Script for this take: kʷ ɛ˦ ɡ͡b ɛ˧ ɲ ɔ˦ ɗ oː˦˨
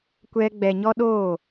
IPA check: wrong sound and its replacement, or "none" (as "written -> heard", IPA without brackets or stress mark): none